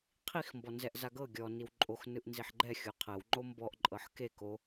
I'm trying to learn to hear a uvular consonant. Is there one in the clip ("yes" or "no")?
yes